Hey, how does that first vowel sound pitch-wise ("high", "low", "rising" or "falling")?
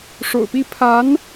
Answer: low